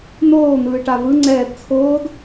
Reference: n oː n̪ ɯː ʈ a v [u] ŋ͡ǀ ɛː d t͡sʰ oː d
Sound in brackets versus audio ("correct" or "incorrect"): incorrect